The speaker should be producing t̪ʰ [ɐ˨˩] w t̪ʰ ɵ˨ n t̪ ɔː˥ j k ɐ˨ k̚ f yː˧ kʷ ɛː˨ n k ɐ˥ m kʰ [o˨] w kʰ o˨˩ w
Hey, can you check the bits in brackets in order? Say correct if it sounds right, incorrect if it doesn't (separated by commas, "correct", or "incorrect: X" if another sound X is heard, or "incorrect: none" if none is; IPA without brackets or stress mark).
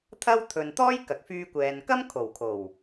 incorrect: ɐ˥, incorrect: o˨˩